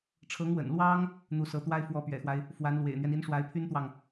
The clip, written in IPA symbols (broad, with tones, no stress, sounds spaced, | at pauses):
ʈ͡ʂʰ ɤ˧˥ ŋ w ə̰˨˩ n l w ɑ˥ ŋ | n̪ u˧˥ s ɤ˧˥ t̪ w a˥ ɪ̯ f w ɔ˧˥ p ɥ ɛ̰˨˩ x w a˦ ɪ̯ | f w a˧˥ n l w ḛ˨˩ ɪ̯ n̪ ɥ ɛ˦ n i˧˥ n ʂ w a˧˥ ɪ̯ pʰ y˥ n t̪ w ɑ˨ ŋ